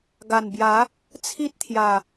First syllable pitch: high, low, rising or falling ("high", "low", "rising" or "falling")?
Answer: low